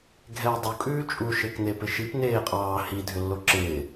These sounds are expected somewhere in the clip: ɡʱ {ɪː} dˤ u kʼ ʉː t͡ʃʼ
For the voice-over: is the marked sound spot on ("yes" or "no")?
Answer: no